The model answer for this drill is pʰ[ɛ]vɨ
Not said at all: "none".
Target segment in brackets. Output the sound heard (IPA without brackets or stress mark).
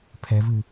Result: ɛ